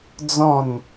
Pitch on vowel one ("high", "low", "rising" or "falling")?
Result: falling